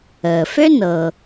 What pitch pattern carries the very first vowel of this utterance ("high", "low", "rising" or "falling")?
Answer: low